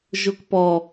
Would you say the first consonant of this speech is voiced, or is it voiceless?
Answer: voiced